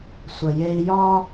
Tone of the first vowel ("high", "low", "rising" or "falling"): low